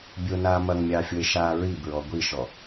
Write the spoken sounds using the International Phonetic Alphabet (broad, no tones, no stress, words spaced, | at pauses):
bʲonaː mɐŋmʲɑːfʲoe̯ʃaː ɹibɹɔ ɡʷiʃɔ